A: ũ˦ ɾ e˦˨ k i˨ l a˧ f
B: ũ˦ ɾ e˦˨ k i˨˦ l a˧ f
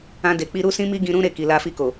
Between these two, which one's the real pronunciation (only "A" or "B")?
A